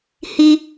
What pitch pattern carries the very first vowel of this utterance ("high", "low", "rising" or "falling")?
high